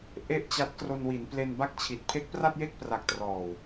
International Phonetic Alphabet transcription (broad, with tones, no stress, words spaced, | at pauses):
ʔe˥˩ʔt͡ɕa˦˥t̚ kro˧nwi˩˦n ple˧n ba˥˩k̚t͡ɕʰi˨˩t̚ pʰe˦˥k̚pra˥˩t̚je˥˩k̚pra˨˩k̚ trɔː˨˩w